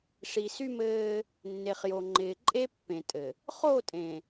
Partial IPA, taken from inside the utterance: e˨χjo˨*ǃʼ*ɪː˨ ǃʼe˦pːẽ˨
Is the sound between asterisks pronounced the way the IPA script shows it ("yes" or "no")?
no